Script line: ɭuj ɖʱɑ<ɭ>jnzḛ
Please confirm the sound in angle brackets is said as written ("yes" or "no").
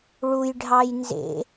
no